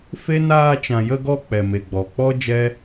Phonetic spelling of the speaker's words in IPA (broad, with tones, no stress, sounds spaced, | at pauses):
f e˦ n aː˧ t͡ʃ ã˨ j ə˧ ɡ ɔ˧ k͡p ɛ˨ m e˨ ɡ͡b ɔ˨ k͡p ɔ˦ d͡ʒ ɛ˦